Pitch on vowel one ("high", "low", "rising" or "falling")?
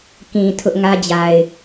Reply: low